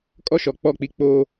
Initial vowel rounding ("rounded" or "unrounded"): rounded